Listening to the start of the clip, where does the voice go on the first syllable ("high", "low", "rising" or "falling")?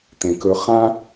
low